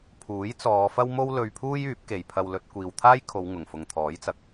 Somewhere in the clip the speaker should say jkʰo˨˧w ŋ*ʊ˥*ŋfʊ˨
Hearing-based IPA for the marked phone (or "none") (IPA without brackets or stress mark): ʊ˨˩